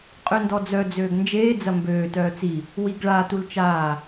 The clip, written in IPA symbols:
qʼøndɔd͡zœ d͡zøːɡnd͡ʒeː d͡zɐmbøː tœːt͡si | wiɡɭa tult͡ʃaː

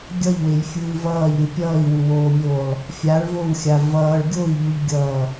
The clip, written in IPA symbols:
ɡʲʌʎwejfʲɯːv ʌːʎɾʲɯ pʲʌːi̯wuwoːmʲoːlˠ | fʲaɭvowxʲa vʌːɭ ɡʲoi̯ʎuʎɡʲʌː

